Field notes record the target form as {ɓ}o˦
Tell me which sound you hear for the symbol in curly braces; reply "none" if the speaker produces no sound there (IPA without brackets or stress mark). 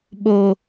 ɓ